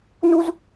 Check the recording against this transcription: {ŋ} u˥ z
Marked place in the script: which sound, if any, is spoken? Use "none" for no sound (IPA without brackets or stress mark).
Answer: n